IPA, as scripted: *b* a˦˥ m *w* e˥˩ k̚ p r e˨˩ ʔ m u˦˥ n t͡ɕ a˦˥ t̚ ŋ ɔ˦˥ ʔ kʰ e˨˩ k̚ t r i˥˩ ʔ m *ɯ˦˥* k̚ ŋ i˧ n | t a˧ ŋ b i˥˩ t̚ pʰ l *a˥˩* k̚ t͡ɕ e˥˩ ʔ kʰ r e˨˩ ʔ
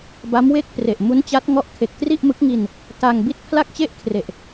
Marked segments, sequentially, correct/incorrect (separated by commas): correct, correct, correct, correct